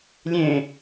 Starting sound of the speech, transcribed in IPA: lʲ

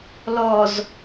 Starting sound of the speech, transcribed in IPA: l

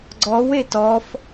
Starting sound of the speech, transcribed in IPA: ɡ͡ǀ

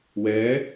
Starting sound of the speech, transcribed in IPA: w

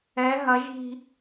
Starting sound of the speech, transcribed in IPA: ɛ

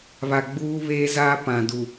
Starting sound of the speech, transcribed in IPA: β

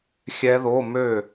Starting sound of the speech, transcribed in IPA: xʲ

